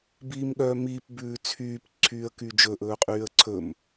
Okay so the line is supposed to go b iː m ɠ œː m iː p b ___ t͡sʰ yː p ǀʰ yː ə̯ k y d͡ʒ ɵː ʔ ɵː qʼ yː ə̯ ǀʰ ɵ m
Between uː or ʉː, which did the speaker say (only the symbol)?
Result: ʉː